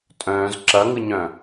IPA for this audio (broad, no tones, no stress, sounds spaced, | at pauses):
tʼ œ̃ː z ǁ ɐ ŋ ɯ ɲ œ̃